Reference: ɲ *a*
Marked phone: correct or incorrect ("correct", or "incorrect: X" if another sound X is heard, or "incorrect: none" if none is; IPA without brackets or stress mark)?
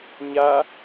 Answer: correct